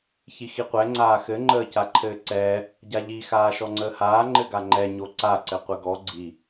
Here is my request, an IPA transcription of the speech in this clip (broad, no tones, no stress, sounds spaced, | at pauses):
ç i x i qʷ ɛ ŋ͡ǀ aː x ɘ ŋ͡ǃ əː c a ǃʰ ɘː ǀ ɛː | ɟ a ʎ i x aː ʃ ɔ ŋ͡ǀ əː h aː ŋ͡ǃ ɘ ɡ a ŋ͡ǃ ɛ ɲ o ǀ a ǀ ɘ qʷ ɘ ɡ ɔ ɡ͡ǀ i